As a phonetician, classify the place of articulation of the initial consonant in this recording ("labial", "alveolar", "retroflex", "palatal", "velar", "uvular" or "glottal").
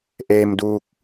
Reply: glottal